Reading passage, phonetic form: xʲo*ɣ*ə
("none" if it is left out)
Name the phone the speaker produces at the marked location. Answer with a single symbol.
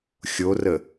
r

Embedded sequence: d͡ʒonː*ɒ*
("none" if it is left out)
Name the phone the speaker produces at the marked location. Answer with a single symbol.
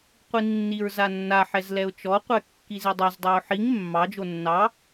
ɑ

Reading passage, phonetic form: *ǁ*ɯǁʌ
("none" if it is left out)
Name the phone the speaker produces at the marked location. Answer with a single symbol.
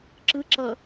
ǁ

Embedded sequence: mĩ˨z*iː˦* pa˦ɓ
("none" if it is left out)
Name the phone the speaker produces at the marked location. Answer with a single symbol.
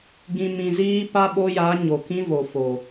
iː˦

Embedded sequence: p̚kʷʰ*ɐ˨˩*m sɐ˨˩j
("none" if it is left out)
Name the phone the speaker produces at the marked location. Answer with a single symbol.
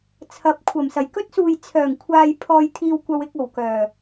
ɐ˨˩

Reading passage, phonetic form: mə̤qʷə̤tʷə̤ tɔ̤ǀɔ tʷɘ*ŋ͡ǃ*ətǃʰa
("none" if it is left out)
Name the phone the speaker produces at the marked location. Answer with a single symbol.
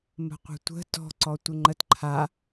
ŋ͡ǃ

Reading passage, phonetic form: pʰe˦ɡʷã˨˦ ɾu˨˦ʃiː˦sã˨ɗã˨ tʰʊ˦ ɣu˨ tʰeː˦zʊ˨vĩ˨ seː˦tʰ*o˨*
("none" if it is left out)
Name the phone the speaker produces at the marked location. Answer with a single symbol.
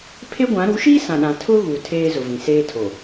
o˨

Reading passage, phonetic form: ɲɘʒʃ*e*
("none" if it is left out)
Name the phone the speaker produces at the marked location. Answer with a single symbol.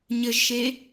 e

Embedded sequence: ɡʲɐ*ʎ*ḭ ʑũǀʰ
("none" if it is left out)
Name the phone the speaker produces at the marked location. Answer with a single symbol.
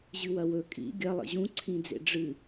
lˠ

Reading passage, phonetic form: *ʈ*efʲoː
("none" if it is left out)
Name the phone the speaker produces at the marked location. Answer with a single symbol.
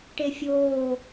ʈ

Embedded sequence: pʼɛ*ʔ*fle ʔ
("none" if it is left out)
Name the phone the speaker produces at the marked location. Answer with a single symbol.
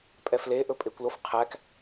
none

